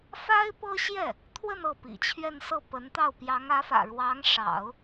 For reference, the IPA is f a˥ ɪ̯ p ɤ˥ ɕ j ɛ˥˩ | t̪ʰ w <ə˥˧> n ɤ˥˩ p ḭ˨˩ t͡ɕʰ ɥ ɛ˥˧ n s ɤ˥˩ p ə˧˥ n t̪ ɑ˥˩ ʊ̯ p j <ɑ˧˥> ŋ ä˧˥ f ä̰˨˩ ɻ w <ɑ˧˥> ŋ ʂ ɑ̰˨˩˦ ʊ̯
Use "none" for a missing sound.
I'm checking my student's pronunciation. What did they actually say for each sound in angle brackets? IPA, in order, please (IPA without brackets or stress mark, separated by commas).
ə˥˧, ɑ˧˥, ɑ˧˥